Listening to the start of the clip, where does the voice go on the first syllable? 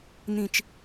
low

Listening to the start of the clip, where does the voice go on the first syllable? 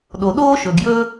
low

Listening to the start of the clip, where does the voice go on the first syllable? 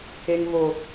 high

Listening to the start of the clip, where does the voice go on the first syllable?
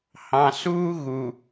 low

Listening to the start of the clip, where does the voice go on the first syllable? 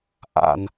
low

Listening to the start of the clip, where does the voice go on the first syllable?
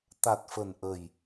low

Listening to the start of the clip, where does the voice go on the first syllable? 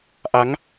rising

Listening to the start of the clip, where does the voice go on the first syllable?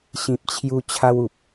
low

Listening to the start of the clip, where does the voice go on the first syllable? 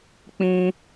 high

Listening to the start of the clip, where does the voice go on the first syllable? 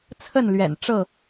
falling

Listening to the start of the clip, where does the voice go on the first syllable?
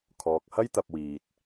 low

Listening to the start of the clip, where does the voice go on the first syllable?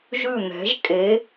falling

